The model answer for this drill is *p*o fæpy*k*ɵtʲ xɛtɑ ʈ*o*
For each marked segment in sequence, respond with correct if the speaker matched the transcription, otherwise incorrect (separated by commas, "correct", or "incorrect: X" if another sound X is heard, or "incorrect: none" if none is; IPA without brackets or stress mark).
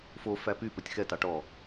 incorrect: f, incorrect: p, incorrect: ɔ